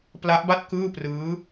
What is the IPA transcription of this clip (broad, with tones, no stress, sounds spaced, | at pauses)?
p l a˦˥ ʔ b a˥˩ t̚ k ɯː˥˩ p r ɯː˦˥